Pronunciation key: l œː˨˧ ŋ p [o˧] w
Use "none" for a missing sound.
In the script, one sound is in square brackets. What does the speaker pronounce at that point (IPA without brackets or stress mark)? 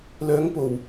o˨˩